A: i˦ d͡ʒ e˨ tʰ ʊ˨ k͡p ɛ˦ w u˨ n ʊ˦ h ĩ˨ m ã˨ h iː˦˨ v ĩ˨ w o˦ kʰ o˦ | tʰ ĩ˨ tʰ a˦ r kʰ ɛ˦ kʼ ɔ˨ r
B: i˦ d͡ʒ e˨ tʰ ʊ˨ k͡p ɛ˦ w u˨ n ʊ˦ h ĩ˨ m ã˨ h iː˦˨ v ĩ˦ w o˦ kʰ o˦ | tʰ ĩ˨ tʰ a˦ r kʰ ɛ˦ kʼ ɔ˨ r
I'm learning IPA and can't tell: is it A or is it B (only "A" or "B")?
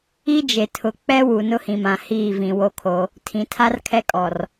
A